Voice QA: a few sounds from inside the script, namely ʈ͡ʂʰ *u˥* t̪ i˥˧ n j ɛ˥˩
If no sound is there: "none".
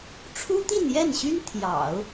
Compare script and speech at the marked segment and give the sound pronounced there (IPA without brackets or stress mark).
u˥